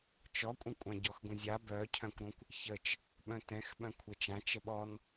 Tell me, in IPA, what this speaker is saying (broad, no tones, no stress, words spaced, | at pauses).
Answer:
t͡ʃɔkʷʼə̃kʷʼã ɟɔxɡʷə̃zʲa bœcʰœ̃kʷɾõkʷ | çət͡ʃ | ɓœ̃tɛ̃x ɓœ̃kʷʰɛt͡ʃã t͡ʃəɓɔn